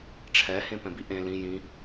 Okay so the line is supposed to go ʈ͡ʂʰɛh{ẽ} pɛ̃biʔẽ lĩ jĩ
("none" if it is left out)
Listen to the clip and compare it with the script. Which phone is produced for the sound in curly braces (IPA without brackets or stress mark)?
ẽ